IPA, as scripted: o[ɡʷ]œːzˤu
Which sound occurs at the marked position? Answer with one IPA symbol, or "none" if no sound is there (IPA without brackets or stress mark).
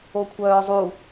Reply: kʷʰ